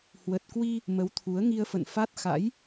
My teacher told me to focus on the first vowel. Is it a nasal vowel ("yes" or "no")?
no